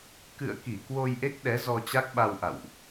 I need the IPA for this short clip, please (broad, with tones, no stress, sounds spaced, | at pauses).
k ɨ̰˧˨ ə̯ k i˧˩ k w o˧ j ʔ e˦˥ k̚ ɗ ɛ˨˦ z ɔ˧ t͡ɕ a˦˥ k̚ ɓ a˧ w ʔ a̰˧˨ w ʔ